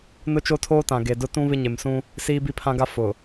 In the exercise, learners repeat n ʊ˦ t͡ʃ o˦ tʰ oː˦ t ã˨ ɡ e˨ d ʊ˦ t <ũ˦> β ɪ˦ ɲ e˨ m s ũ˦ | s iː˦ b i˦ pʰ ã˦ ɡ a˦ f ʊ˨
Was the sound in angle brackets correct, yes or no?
yes